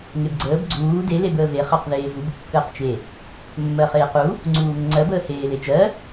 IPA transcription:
ŋ e b ɡ͡ǀ əː b ɡ͡ǀ uː d e l e b əː v e χ ɜ q ð eː v u b kː əː q t͡ʃ e | mː ɜ χ eː q u | ŋ͡ǀ uː ŋ ə ŋ͡ǀ ɜ b əː h eː l e t͡ʃ ɜ

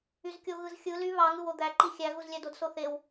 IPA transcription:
y z kʲ o ɣ ɯ z xʲ ɯ l y β ɑ ŋ ɯ w o d̪ æ ǃ i xʲ æ ɣ u z lʲ æ d o d s o θ e w

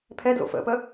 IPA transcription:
pʰ ɛ d l o̰ f ə̰ p ə

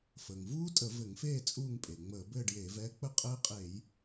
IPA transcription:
f əː˩ ŋ v uː˦˥ tʼ ə˧˩˧ v ɘ˧˩˧ ŋ f eː˥˨ t͡sʼ uː˥˨ ŋ pʼ e˩ ŋ͡m əː˧˩˧ b ɘː˥˨ ɖ j eː˧˩˧ v ɛː˦˥ k͡p ə˥˨ qʼ ɘː˦˥ qʼ eː˧˩˧ j

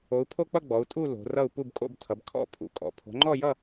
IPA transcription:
o˨˦ u̯ pʰ o˥˧ k͡p ʌ˥˧ ɡ͡b ɔ˨˦ u̯ tʼ u˥˧ l o̤˨˦ r ʌ˥˧ u̯ p u˥˧ b kʼ o̰˥˧ b tʰ ʌ˨˦ b kʰ ɔ̰˥˧ pʰ ṵ˨˦ kʼ ɔ̰˨˦ pʰ o̤˨˦ ŋ͡ǃ ɔ˥˧ j ʌ˥˧

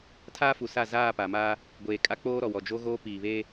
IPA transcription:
tʰ aː˦ f u˨ s a˦˨ z aː˦˨ p a˨ m a˦ | ɡʷ eː˨ kʼ a˦ k͡p oː˦ ɾ ɔ˨ w ɔ˨ d͡ʒ o˦ ɣ oː˦ p iː˨ β e˦

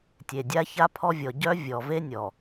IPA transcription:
tʲ e˨ dʲ a˦ ç a˦ pʰ ɔ˦ vʲ ɔ˨ ɟ œ˦ vʲ ɔ˨ v e˦ nʲ ɔ˨

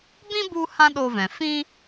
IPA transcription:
b ĩ˦ b u˧ h ã˦ ɗ o˧ v ɛ̃˨ f ĩ˦

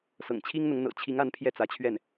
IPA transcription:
s ɤ̰˨˩ ŋ t͡ɕʰ i˥ ŋ n̪ ʊ˧˥ ŋ n̪ ɤ̰˨˩ t͡ɕʰ i˧˥ ŋ a˧˥ n pʰ j ɛ˥˩ t͡s ä˧˥ t͡ɕʰ ɥ ɛ˥˩ n

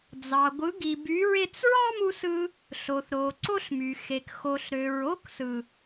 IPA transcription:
d͡z ɑ˨ ɡʷ ɯ˨˦ ɡ i˨ b y˨˦ ɹ e˦ t͡s ɹ ɑ˦ m u˧ s ɯ˧ | ɬ o˨ θ ɾ o˨ ǀ o˦ ɬ m y˨ x e˨ k x o˨ ɬ ɾ ø˨ ɹ o˦ k s ɯ˨

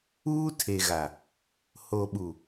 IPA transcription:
uː˦ tʰ e˨ ɣ a˨ | h o˨ ɓ u˨

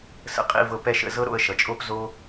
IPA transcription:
s ə̰˧ qʼ ḭ˦˨ v ɤ˧ p ɛ˦ ʃ ə̰˧ z ɤ˦ ɾ o̰˧ ə̯ ʃ ʌ˨ t͡ʃʼ o˦ p z o˦

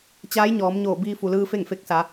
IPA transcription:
t͡ɕ aː˧˥ j ɲ ɔː˩˧ m ɲ oː˧˩ b iː˧ f u˩ l ɯː˧ f e˥˨ ŋ f e˧˥ k̚ s a˩˧

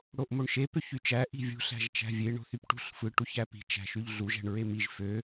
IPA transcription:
ɽ o ʔ m o ɳ ʃ e p ø ç y t͡ʃ æ ʔ i̤ vʲ ṳ ɬ æ̤ ʒ t͡ʃ æ̤ vʲ e ɳ o̤ θ y p ʈ ṳ ɬ f ɯ ʈ u ç æ p i̤ t͡ʃ æ̤ ʃ y ʎ ɮ u ʒ æ̤ ɳ ɹ e m i ʒ f ø

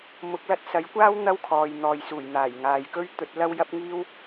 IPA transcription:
m ʊ˨˥ k̚ l ɐ˨˥ t̚ s ɐ˨˥ j kʷ aː˥ w n̪ ɐ˥ w kʰ ɔː˨ j n̪ ɔː˨ j s uː˨˩ j n̪ aː˨˩ j ŋ aː˨ j k ɵ˥ ɥ t̪ ɵ˨ t̚ l ɐ˧ w j ɐ˥ p̚ ŋ iː˥ w

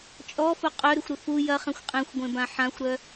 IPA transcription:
t͡ʃʼ ɔ f ʊ qʼ œ ɾ ʏ xʷ ɾ ʏ f u j ɐ χ ɛ̃ xʷ qʼ ẽ xʷ ɡʷ ẽ b ã ħ ã xʷ ɾ œ

